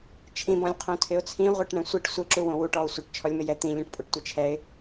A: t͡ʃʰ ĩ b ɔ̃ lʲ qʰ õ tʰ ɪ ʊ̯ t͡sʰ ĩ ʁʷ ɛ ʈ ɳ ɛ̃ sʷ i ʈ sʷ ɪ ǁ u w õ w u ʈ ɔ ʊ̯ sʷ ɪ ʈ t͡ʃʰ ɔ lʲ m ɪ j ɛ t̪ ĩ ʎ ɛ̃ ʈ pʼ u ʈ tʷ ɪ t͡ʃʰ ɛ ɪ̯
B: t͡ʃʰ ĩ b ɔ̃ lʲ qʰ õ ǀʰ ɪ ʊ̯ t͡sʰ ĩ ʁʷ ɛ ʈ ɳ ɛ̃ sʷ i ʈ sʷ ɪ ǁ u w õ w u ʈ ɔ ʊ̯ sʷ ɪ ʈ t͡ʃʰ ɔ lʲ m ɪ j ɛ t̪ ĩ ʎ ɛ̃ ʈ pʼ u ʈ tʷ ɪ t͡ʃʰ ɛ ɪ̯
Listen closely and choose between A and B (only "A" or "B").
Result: A